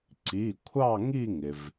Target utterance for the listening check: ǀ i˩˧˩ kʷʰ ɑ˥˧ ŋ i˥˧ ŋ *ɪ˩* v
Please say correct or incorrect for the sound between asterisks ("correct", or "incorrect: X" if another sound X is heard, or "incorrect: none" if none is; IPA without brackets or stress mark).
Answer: correct